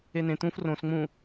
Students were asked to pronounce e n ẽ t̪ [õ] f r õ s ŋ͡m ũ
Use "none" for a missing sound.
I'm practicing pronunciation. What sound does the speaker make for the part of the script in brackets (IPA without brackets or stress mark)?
ũ